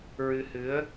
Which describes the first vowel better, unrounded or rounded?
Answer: unrounded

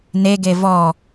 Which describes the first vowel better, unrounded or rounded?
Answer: unrounded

